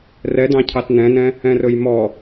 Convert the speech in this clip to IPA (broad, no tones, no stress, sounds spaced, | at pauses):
r ɛ d ɑ̃ cʰ ɑ t n ɛ̃ n ɛ̃ | ɛ̃ r ɵ j m ɔ